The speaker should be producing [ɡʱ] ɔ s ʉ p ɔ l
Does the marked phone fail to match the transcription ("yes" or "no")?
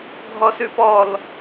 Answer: no